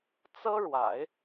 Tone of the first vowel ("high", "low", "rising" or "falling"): high